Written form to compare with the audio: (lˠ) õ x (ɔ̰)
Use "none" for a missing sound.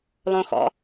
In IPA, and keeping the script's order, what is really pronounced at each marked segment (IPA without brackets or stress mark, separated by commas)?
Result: lˠ, ɔ̰